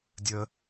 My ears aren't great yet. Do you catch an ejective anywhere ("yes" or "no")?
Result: no